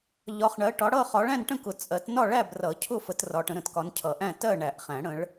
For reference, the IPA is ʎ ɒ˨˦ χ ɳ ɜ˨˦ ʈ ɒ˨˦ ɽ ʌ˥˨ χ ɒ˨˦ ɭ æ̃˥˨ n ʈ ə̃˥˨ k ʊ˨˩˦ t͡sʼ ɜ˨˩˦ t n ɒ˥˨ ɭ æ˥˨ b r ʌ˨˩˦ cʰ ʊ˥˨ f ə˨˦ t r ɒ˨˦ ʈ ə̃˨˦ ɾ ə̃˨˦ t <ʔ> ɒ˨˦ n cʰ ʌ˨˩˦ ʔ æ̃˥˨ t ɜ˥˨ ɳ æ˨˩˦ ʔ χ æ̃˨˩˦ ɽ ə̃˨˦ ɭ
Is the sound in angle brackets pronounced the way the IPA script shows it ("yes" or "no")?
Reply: no